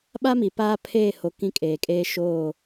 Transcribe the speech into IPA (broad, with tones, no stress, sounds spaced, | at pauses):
ɓ a˦ m i˨ p aː˦ pʰ eː˦˨ h o˨ k ĩ˦ kʼ eː˨ kʼ eː˦ ʃ oː˦˨